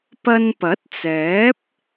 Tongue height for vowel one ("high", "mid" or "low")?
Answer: low